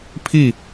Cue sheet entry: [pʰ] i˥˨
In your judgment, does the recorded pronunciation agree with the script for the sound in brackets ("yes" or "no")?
yes